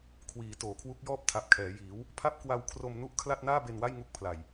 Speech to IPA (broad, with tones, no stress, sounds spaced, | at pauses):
kʰ w iː˩˦ t oː˩˦ kʰ w u˦˥ k̚ j ɔː˥˩ p̚ tʰ a˨˩ p̚ kʰ ɛː˩˦ j iː˩˦ w | pʰ a˥˩ p̚ k w a˧ w kʰ r o˧ m n u˥˩ ʔ kʰ l a˥˩ t̚ n aː˥˩ b e˧ n w a˥˩ j ŋ u˦˥ k̚ pʰ l a˨˩ j